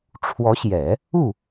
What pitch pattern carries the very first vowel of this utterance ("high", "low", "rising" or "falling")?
rising